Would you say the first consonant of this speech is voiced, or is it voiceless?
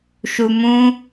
voiceless